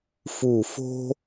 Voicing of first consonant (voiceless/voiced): voiceless